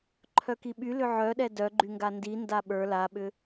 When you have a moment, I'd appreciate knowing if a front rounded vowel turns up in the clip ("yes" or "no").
yes